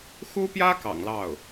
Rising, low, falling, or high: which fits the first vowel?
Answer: high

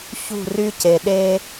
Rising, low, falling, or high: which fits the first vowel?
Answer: falling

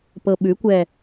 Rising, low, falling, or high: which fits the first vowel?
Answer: low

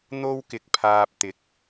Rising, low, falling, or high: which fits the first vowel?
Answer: high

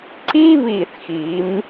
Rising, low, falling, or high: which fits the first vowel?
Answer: high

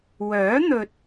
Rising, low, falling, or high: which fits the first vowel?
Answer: rising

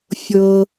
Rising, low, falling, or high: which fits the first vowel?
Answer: high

